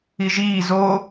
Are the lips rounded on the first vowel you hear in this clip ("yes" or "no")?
no